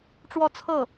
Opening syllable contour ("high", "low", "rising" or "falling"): falling